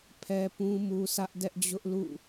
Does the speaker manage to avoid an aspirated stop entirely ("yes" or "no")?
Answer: no